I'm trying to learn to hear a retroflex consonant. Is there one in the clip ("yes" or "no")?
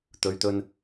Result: no